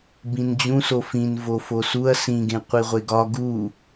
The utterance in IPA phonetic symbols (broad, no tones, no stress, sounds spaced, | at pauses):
b ĩ n d͡ʑ ũ s o f ĩ n v o f o s u ɐ̯ s ĩ ɡ ẽ qʷ i ʁʷ e ɡ ɒ ɡ u